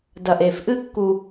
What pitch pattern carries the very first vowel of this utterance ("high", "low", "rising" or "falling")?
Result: low